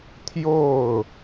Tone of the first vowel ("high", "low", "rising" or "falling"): falling